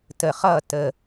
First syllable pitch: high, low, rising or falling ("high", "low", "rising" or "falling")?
low